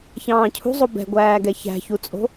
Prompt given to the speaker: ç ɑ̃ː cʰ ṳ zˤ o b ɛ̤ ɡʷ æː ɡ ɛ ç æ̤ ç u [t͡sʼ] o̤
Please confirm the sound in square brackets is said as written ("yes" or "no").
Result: yes